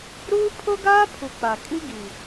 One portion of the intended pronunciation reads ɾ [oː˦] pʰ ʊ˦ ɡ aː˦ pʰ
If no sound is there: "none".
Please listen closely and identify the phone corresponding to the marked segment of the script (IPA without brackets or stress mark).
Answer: uː˦